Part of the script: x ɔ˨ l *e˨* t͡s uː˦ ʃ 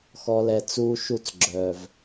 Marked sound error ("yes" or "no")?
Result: yes